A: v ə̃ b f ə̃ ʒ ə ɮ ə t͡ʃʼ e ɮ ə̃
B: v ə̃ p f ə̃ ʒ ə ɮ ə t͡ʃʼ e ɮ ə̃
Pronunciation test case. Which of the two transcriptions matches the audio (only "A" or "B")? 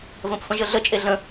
B